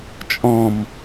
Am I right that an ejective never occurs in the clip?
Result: no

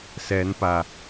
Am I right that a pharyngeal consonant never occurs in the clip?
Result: yes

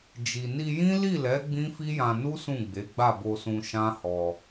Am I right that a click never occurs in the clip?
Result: yes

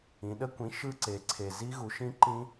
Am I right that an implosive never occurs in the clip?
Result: no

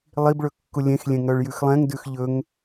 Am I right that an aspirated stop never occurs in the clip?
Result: yes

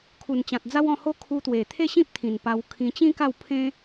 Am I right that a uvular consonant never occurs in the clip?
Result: yes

